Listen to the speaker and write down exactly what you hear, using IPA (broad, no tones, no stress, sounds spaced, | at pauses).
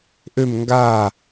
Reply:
ʔ ø m ŋ ɡ aː